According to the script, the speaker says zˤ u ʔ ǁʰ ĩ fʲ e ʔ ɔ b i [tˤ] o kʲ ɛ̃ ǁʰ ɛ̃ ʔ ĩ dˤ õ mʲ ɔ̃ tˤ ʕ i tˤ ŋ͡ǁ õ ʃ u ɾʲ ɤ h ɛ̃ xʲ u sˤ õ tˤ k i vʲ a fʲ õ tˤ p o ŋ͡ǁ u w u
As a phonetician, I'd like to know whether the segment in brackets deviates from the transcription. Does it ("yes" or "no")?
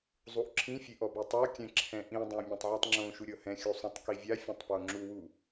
no